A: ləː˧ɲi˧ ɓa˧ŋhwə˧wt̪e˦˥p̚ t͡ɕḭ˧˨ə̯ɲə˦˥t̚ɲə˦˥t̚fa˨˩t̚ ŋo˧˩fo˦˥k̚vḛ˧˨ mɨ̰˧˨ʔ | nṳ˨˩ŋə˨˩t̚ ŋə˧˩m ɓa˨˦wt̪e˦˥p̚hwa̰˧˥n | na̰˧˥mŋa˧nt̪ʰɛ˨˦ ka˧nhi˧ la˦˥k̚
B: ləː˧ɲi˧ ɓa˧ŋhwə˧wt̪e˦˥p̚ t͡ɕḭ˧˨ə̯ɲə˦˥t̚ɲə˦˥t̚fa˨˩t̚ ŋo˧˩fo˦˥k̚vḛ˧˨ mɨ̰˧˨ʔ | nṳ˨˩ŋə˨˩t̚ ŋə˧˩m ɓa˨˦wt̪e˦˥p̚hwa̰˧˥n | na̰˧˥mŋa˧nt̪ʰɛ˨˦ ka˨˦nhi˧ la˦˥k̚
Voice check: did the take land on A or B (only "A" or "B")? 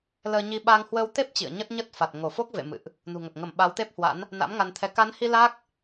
B